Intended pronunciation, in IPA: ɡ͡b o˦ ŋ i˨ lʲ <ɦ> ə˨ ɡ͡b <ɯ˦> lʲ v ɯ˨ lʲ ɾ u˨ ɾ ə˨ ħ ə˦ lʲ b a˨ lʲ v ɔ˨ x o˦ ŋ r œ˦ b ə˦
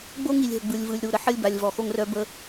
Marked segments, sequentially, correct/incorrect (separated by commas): correct, incorrect